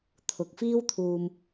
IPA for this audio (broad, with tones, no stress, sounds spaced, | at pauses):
t̪ʰ ʊ˨˥ k̚ f iː˥ w t̪ʰ uː˧ m